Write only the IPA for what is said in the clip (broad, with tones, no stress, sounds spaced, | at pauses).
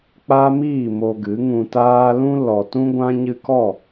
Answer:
k͡p a˦ m iː˦˨ m o˧ ɡ ɨ˨˦ ŋ ũ˧ t aː˦ l ũ˦ l ɔ˨ t ũ˦ ɡʷ ã˦ ɲ ɨ˧ k ɔ˦˨